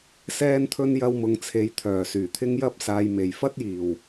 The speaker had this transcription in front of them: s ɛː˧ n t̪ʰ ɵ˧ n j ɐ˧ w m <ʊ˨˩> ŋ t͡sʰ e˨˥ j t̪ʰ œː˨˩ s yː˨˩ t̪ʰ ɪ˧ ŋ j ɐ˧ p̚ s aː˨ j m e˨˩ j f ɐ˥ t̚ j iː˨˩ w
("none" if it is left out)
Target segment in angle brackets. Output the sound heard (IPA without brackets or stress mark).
ʊ˨